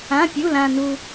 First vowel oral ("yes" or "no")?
no